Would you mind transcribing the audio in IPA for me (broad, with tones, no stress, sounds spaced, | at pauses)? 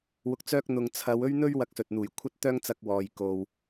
w ʊ˧ k̚ t͡s œː˥ k̚ n̪ ʊ˨ ŋ t͡sʰ ɐ˨˧ w ɵ˥ ɥ n̪ ɵ˥ ɥ w ɐ˧ k̚ s ɵ˨ t̚ n̪ uː˨˩ j kʷʰ ɐ˥ t̚ t̪ œː˥ ŋ t͡s ɐ˧ k̚ w ɔː˨ j k o˨ w